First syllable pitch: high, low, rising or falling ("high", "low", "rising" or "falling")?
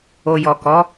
low